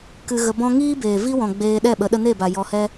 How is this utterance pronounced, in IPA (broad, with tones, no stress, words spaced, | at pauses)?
kɨ˧ɣə˧bɔ̃˦ ŋiː˦beː˨vi˦wɔ̃˨ ɡ͡beː˧ɗɛ˦˨ɓə˨˦ ɗə˧ne˦˨ba˨ jɔ˧hɛ˦